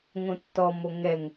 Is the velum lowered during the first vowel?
yes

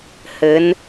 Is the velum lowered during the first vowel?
no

